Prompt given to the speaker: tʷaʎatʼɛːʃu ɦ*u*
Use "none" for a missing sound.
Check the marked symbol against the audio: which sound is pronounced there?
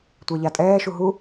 u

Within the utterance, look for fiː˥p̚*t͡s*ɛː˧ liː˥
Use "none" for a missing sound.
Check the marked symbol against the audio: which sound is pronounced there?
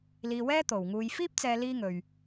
t͡s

